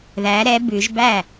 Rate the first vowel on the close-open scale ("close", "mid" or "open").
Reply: open